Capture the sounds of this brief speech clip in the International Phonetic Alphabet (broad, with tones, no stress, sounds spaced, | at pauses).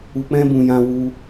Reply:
u˧ k͡p ɛ̃˦ b ũ˧ j ã˦ w u˦